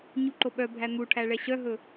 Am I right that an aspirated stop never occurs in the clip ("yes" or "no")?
no